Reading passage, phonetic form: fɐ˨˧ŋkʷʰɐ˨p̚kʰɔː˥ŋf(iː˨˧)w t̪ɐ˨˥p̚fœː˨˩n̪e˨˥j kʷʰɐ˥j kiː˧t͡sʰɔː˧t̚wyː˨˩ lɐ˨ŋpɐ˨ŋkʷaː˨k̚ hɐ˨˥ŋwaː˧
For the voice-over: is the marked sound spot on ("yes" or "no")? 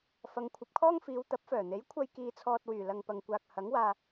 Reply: yes